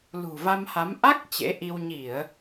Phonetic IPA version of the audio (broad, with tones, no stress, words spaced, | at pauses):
lṳ˨˩va˧mha˨˦m ʔa˦˥k̚ t͡ɕḛ˧˥ʔi˧w ɲi˧˩˨ə̯